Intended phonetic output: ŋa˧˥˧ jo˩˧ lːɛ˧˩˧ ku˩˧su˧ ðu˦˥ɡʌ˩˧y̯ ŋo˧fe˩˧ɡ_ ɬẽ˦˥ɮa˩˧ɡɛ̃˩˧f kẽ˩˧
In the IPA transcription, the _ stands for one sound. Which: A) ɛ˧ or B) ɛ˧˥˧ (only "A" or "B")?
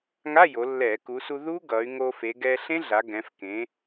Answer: A